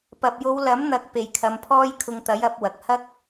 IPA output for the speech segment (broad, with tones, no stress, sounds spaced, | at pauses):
p ɐ˨ p̚ j o˨˧ w l ɐ˨˥ m n̪ ɐ˨ k̚ p e˨ j kʰ ɐ˨˧ m pʰ ɔː˥ j kʰ ʊ˧ ŋ t̪ ɐ˨˥ j ɐ˨˥ p̚ w ɐ˨ k̚ h ɐ˥ k̚